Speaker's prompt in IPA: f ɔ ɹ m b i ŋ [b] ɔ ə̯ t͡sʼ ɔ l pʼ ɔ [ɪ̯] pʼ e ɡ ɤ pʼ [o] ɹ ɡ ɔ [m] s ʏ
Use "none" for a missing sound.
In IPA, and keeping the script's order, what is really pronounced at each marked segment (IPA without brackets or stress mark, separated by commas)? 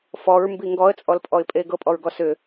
ɡ, ɪ̯, ɔ, none